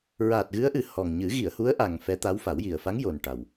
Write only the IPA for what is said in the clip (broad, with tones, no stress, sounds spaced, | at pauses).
ɹ aː˨˩ t̚ ɣ ɨ˧˥ ə̯ ʔ ɨ˨˩˦ h ɔ˨˩ ŋ ɲ ɨ˨˩˦ ɣ i˨˩˨ ə̯ h u˧˥ ə̯ ʔ a˨˩ ŋ f ɛ˧˥ t̪ a˧˥ w f a˨˩˦ w j i˨˩ ə̯ f a˧˥ ŋ j o˨˩ n ʈ a˨˩ w